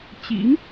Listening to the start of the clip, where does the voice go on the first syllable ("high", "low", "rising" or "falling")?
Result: rising